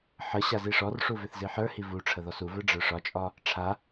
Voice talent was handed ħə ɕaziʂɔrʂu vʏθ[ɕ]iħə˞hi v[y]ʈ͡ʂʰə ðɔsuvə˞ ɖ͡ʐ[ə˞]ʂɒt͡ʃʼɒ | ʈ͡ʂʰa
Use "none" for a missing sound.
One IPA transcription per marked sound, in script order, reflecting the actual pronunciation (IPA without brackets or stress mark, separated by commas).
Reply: z, u, ə˞